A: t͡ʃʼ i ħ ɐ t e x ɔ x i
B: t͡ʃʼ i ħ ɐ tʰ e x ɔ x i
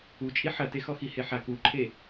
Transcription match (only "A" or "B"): A